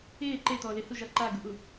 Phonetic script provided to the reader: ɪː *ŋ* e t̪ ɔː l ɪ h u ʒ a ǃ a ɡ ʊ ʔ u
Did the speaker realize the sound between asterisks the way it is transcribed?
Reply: no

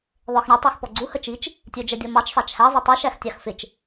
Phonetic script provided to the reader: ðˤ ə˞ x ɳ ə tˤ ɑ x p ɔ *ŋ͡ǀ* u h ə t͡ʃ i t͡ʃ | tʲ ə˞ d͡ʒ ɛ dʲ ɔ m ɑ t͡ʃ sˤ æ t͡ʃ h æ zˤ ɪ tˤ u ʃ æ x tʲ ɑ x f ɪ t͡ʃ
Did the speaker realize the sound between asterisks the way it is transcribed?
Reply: no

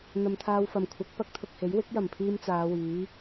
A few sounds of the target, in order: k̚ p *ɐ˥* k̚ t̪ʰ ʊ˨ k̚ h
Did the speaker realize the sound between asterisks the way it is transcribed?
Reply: yes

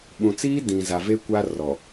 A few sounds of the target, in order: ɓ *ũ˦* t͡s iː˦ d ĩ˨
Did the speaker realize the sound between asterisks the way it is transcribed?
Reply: no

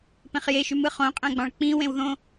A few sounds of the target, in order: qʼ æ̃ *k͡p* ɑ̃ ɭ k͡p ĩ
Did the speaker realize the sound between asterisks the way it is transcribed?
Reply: no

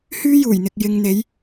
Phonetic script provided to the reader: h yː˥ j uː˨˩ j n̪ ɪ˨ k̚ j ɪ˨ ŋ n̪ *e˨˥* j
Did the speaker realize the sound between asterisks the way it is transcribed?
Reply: no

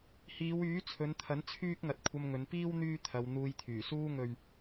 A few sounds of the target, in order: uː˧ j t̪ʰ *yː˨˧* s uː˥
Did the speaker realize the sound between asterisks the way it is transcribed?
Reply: no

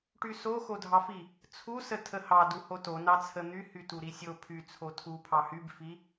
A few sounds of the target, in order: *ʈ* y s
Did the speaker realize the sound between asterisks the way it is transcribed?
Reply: yes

